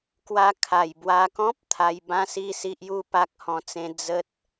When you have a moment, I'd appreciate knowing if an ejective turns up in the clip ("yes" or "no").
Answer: no